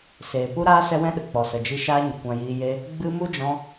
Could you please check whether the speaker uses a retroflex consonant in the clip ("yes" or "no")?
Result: no